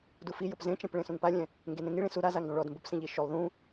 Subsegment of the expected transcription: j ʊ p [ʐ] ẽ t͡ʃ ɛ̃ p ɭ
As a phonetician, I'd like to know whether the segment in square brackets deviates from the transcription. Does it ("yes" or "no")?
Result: yes